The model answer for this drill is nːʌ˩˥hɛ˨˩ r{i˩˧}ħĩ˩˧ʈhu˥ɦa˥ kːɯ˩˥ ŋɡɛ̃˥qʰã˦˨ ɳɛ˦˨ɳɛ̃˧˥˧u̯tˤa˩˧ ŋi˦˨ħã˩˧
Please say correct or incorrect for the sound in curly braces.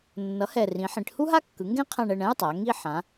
incorrect